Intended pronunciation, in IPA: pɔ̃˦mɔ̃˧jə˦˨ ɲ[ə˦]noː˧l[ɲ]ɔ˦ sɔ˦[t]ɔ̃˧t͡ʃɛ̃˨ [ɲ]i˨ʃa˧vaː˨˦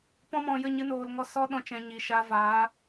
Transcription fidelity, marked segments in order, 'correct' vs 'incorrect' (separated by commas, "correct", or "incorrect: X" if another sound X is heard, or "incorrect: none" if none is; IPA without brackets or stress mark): incorrect: ɨ˦, incorrect: ŋ, incorrect: ɗ, correct